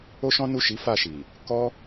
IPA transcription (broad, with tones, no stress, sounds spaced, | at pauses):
o˦ ʃ ɔ̃˦ n u˦˨ ʃ i˨˦ f a˦˨ ʃ i˨ | k ɔ˦